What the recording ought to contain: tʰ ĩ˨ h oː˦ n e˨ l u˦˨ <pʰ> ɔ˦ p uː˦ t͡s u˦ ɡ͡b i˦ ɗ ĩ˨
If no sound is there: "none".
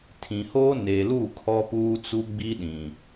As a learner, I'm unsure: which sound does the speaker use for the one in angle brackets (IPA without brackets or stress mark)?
kʰ